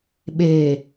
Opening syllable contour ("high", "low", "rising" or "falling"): low